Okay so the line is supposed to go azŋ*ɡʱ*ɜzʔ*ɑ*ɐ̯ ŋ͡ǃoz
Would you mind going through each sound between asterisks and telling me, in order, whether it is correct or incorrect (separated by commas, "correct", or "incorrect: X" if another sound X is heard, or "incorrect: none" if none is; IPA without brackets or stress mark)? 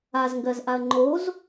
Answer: incorrect: ɡ, incorrect: a